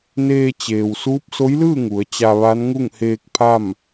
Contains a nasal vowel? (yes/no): no